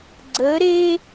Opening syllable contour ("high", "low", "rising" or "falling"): rising